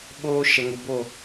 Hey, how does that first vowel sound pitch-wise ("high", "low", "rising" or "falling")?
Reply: high